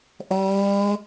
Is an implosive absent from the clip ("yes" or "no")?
yes